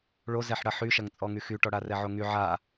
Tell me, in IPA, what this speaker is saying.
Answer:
ɭ o z ɛ ħ ɽ ɐ ħ y ʃ ɐ ŋ t͡sʼ ɔ ŋ y x y ʈ ɔ ɽ a r ɛ ʕ o ŋ y ʕ a

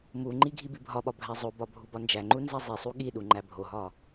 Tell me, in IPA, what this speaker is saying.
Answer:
m u ŋ͡ǃ i ɡʱ i b i bʱ ɒ ɓ ɒ bʱ æ zˤ o b ɒ bʱ u b ɒ n d͡ʒ æ ŋ͡ǃ u n z æ zˤ e sˤ u ɠ i ɗ u ŋ͡ǃ æ bʱ o ɦ ɒ

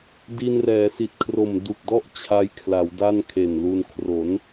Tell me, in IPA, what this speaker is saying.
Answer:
d i˧ n r ɛː˩˦ s i˨˩ t̚ kʰ r o˨˩ m d u˨˩ k̚ d ɔ˥˩ ʔ t͡ɕʰ a˦˥ j kʰ l a˩˦ w d a˥˩ n kʰ e˨˩ n l u˧ n kʰ r o˩˦ n

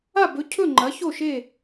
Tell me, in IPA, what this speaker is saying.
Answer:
a˥˨ b ɵ˨˥ cʰ ɵ˥˨ ŋ͡ǃ ɐ˨˥ ç o˥˨ ʃ e˥˨

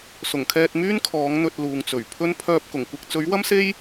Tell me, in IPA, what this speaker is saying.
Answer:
s ʊ˨˩ ŋ kʰ ɛː˧ t̚ m yː˥ n kʰ ɔː˨˥ ŋ n̪ ɵ˧ t̚ l uː˨ ŋ t͡s ɵ˨˩ ɥ pʰ ɵ˥ n pʰ œː˧ p̚ k ʊ˨˩ ŋ kʷ ɪ˧ k̚ t͡s ɵ˨˥ ɥ w ɐ˥ m s e˥ j

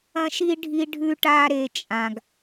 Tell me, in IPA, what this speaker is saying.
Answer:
ɐ̃˦ ʃ i˦ ɖʱ i˦ ɖʱ ʉ˦ ʈ a˦ ɾ e˧ t͡ʃʼ ã˨ ɡ

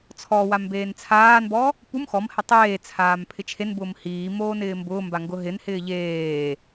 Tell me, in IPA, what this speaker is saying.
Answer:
t͡sʰ ɔ w a m b eː n t͡sʰ aː n b ɔ | p u m x ɔ m h ɛ tˤ eː t͡sʰ aː m pʰ ɪ t͡ʃʰ e n b ʊː m h iː m oː n ɪː m b ʊː m b a ŋ ɡ ʊ ɦ ɪ n h ɪː ʎ eː

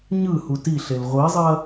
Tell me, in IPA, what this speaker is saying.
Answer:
ɲ ɯ h u t i ɬ e l ʁʷ i zˤ i ɐ̯

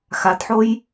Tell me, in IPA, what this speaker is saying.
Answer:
x a d ħ o j

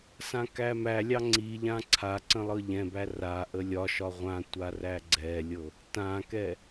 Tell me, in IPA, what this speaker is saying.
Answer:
s ã k æ m æ lʲ ɑ ŋ͡ǀ i ʎ ã ǀʰ a ǀ ə̃ lˠ ɤ ʎ ɛ̃ b æ r a ʔ ə lʲ ɒ ʃ ɒ ʁʷ ã tʷ a r æ ɡ͡ǀ ɛ lʲ ɤ | t ã k ɛ

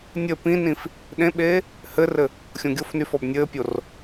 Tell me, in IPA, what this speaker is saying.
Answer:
nʲ ɘ p ĩ n ĩ f | ɗ ẽ ɓ eː | h ɘ r ɘ | xʲ õ ɡʲ o f n y f ɔ b nʲ ɘː pʲ o r

